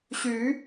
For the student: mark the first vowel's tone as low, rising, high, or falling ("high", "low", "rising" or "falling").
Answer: rising